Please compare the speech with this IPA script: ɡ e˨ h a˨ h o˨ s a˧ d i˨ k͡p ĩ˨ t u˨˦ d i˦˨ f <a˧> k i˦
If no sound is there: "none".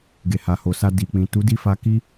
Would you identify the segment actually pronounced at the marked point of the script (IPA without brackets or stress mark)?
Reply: a˧